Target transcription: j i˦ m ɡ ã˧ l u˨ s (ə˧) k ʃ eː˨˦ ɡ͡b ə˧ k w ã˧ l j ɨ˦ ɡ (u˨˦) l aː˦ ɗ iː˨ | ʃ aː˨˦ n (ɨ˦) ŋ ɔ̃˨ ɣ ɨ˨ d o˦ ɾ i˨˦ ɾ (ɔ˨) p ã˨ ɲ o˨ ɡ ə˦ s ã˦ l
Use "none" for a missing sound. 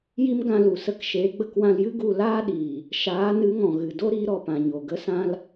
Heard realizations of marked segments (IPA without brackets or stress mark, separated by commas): ə˧, u˧, ɨ˨˦, ɔ˨